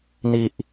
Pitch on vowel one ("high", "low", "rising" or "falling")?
low